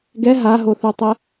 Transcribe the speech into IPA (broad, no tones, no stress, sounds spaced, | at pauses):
ɡ ɛ ɦ a ɦ o θ u tˤ ɛ